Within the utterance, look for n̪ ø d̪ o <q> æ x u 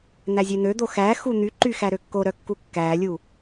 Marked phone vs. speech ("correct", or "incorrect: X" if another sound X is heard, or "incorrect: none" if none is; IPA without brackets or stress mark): incorrect: x